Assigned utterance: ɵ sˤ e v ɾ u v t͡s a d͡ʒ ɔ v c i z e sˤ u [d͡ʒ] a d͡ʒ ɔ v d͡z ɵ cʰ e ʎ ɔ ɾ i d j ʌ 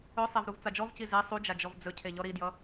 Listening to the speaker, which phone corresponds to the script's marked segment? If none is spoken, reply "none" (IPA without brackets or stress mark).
d͡ʒ